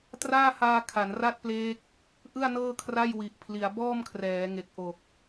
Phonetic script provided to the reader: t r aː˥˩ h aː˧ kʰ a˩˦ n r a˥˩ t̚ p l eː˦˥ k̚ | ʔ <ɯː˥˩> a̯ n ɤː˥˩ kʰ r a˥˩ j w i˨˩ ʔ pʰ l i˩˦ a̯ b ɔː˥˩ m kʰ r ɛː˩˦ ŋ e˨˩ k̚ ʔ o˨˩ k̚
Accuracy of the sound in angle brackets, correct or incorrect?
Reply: incorrect